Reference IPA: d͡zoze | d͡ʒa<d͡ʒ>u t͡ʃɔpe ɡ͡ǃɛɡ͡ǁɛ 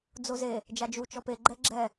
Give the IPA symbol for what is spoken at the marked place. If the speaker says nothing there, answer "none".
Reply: d͡ʒ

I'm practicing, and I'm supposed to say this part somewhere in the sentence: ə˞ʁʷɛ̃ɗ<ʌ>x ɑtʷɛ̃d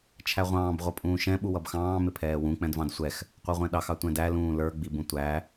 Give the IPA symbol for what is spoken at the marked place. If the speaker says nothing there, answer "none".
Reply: ɑ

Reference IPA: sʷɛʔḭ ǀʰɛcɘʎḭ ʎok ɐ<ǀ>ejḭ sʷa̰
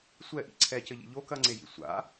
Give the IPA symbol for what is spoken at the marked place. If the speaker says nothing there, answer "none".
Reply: ŋ͡ǀ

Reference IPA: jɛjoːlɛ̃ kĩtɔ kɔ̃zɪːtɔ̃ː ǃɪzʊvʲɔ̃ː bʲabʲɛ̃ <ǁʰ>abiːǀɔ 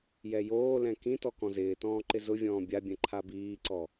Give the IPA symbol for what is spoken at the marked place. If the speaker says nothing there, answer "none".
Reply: ǃʰ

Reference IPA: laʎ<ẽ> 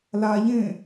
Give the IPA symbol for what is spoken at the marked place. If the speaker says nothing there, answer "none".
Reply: ẽ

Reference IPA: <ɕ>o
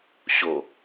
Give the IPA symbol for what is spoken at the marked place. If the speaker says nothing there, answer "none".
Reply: ɕ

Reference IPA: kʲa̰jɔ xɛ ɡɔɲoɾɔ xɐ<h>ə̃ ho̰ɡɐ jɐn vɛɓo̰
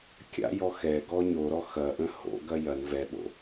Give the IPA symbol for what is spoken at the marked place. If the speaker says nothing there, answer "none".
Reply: ʔ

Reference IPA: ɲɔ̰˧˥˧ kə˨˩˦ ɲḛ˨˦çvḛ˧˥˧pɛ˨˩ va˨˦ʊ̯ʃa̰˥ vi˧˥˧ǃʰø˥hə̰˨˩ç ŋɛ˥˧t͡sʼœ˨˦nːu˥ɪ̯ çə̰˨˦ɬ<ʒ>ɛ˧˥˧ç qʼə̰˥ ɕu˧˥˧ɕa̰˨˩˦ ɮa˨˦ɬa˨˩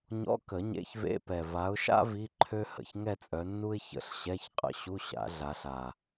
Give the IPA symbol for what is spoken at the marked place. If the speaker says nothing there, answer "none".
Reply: ɕ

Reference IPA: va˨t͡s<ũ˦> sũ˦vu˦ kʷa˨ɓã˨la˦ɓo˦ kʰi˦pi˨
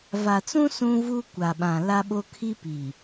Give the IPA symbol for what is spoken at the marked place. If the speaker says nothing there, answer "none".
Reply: ũ˦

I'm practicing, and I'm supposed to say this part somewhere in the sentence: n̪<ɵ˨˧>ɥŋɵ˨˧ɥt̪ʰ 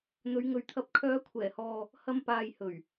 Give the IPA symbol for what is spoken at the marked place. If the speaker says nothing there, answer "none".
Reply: ɵ˨˧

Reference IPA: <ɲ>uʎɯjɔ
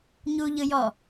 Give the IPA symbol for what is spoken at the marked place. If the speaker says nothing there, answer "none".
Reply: ɲ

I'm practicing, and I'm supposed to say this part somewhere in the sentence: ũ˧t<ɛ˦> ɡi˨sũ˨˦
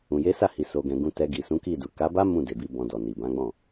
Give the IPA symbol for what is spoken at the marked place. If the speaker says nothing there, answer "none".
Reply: ɛ˧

